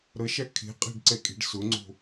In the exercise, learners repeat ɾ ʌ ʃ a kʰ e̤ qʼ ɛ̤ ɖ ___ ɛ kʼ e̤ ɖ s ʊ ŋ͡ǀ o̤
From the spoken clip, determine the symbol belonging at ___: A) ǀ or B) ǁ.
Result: A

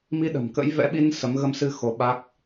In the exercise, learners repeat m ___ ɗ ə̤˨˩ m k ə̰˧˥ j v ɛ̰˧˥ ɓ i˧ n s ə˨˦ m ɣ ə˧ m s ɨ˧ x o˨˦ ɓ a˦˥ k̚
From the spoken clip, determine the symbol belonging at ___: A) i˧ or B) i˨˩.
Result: A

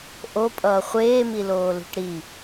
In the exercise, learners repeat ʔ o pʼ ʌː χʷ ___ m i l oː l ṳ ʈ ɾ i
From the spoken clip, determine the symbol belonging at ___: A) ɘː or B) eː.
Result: B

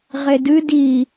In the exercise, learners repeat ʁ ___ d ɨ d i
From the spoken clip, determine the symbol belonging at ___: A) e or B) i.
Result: A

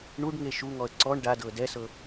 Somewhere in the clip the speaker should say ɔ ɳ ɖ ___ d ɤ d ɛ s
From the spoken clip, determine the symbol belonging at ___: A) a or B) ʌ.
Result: A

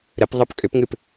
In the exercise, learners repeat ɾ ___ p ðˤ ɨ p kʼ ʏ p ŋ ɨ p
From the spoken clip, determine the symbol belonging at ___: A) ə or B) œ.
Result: A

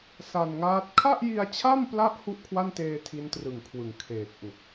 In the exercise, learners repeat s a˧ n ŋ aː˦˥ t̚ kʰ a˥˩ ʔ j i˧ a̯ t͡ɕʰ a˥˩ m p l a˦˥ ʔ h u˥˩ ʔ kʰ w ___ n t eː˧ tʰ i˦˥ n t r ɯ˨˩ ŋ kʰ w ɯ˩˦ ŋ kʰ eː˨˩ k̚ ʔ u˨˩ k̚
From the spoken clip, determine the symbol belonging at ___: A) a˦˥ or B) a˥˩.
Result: B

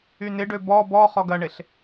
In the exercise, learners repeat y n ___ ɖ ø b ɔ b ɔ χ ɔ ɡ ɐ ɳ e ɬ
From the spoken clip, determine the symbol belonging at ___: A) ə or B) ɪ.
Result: B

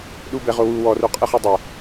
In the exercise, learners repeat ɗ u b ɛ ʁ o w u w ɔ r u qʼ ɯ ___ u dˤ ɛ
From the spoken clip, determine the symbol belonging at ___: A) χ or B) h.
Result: A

